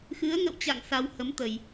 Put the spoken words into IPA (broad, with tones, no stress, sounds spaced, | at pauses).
x ɨ˨˦ ə̯ ŋ ə̰˧˨ w t͡ɕ a̰˧˨ ŋ s a˧ w h ə˨˦ m t̪ ə˧˩˨ j